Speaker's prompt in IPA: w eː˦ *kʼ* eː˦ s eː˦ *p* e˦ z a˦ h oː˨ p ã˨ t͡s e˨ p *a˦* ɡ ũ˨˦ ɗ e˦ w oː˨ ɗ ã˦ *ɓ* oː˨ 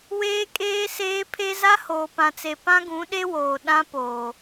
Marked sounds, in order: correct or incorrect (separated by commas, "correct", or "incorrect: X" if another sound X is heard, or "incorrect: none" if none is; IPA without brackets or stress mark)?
correct, incorrect: pʰ, incorrect: ã˦, incorrect: p